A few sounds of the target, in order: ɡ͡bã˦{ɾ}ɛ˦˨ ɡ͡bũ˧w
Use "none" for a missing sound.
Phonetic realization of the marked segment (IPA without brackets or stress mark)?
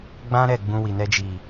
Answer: ɾ